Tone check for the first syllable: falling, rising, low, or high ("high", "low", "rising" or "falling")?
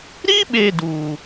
high